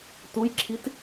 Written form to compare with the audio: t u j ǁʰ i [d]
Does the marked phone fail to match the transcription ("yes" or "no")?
yes